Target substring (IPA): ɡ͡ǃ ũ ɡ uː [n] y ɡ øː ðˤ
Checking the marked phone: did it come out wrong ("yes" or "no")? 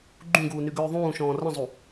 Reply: no